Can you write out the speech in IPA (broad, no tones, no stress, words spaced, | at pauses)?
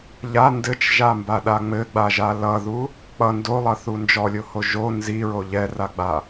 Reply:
ʎa ndɘt͡ʃʒambaɗa ŋ͡mɘɡ͡baʒa lʌðu | k͡pʌ ndolˠʌθu nd͡ʒɔlʲoho ʒo nziɹo ʎɛraɡ͡ba